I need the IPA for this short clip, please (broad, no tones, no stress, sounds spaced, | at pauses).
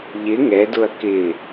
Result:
ʎ ɪ ŋ ɛ d ʊ ɐ̯ k ɪ